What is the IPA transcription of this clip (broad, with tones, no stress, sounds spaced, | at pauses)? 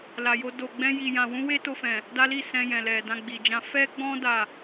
l a˧ j o˦ d o˧ ɡ͡b ɛ̃˦ j i˧ j ã˧ w ũ˦ w e˦ t o˧ f ɛ̃˨ | d a˦ l i˦˨ s ɛ̃˧ j ɛ̃˨ l ɛ˨ d ã˧ ɡ͡b i˨ d͡ʒ ã˧ f ɛ˦ ɡ͡b ɔ̃˦ d a˦˨